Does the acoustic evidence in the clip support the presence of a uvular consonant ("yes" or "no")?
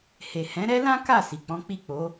no